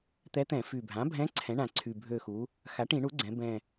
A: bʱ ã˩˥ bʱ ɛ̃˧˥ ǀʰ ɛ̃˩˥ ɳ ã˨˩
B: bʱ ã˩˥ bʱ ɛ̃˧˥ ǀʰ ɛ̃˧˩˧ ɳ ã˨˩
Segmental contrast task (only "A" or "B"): A